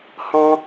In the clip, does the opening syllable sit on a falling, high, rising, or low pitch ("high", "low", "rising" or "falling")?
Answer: high